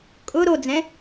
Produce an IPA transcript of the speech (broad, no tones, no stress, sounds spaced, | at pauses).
kʼ ʊ ɾ o d͡z ɛ̃